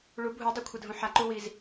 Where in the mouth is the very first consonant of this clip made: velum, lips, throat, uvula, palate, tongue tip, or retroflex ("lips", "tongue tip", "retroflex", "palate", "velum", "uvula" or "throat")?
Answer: retroflex